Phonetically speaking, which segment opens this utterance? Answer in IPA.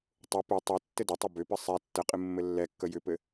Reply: tˤ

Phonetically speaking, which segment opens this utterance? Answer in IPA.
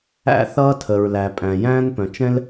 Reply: æ̰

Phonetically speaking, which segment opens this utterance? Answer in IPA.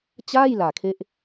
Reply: t͡ɕ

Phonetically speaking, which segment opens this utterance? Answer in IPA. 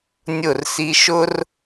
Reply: nʲ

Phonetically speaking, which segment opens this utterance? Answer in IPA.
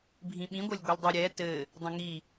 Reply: bʱ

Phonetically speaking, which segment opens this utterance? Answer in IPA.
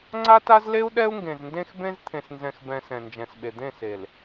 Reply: ŋ͡ǀ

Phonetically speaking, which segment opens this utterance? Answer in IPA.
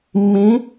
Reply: mː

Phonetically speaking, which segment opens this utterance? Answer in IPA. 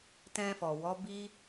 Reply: t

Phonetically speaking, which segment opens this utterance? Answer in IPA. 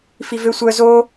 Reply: f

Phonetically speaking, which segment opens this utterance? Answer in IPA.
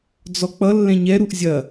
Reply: d͡z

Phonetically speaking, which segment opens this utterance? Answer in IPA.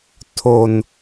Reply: tʰ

